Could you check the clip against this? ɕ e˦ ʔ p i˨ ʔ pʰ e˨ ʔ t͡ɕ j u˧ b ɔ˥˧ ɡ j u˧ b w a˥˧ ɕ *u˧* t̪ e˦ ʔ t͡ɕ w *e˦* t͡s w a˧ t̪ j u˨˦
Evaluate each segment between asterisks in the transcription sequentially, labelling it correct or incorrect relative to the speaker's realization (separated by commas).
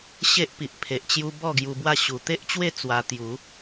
incorrect, incorrect